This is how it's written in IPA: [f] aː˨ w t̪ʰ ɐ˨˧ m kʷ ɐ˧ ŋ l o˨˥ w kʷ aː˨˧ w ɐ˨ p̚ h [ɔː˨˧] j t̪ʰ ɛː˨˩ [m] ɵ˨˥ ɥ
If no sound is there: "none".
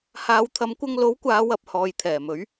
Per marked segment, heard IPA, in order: h, ɔː˨, m

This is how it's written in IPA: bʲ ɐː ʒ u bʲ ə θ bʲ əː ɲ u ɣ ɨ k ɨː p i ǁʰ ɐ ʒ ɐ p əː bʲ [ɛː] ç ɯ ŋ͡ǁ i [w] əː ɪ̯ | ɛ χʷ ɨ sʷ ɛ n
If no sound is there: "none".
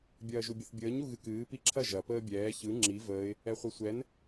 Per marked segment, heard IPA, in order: ɛː, v

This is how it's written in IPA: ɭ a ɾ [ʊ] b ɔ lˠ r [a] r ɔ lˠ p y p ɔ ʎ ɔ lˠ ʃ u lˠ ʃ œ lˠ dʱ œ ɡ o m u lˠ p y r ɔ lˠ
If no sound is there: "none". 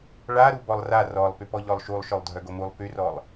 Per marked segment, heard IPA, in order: u, a

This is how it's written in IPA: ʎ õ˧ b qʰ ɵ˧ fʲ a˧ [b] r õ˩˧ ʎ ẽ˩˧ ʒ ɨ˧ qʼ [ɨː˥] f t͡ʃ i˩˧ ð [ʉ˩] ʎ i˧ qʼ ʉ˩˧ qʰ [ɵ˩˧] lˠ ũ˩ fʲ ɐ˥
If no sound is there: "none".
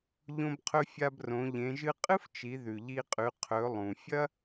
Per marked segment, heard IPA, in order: b, ɨ˥, ʉ˩, ɵ˩˧

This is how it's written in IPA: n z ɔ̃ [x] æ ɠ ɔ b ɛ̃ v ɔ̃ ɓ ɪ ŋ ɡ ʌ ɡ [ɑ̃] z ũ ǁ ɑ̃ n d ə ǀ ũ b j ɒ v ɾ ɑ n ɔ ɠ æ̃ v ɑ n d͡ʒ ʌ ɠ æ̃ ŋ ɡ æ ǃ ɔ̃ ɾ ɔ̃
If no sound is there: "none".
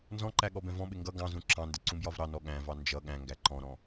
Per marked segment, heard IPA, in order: ǃ, ɑ̃

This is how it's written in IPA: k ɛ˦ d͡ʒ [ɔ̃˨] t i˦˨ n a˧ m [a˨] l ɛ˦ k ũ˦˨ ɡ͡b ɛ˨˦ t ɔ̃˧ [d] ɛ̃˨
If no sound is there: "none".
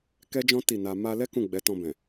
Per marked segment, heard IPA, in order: ɔ̃˦, a˧, b

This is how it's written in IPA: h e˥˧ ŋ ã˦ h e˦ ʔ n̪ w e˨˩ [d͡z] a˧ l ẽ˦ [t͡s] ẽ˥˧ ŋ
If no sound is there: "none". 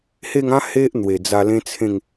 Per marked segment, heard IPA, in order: d͡z, t͡sʰ

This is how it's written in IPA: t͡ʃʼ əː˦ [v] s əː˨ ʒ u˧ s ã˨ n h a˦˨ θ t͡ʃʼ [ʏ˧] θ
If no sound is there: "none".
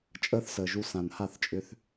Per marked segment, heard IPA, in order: θ, ʏ˧

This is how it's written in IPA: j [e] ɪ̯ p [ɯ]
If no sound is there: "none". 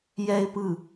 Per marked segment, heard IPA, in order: ɛ, ɯ

